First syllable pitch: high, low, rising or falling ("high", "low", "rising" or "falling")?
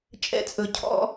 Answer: high